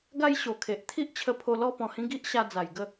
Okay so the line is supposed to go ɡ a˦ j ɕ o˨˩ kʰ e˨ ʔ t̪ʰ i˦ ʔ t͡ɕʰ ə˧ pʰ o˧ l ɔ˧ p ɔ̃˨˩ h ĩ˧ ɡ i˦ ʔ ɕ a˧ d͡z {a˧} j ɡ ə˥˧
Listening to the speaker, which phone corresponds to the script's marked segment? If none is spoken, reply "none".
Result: a˨˩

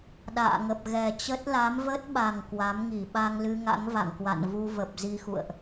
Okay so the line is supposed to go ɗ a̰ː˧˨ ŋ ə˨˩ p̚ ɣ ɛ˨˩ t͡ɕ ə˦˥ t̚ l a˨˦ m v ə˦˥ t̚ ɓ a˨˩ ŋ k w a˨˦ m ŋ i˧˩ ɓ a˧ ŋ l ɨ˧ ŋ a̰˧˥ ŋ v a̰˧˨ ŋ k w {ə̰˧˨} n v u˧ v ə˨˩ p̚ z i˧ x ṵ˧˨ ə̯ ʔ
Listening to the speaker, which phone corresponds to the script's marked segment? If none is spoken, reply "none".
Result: a̰˧˨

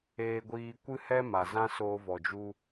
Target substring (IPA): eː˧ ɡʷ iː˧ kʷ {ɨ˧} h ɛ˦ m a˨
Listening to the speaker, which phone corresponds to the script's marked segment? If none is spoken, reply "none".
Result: ɨ˦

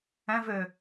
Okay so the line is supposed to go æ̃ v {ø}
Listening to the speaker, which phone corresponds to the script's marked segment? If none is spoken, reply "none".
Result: ø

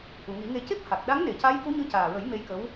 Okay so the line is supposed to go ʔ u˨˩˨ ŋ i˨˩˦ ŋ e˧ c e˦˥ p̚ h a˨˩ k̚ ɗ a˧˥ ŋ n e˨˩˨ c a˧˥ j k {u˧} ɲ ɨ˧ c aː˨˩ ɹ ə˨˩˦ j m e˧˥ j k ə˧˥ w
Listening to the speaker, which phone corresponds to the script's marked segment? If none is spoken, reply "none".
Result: u˧˥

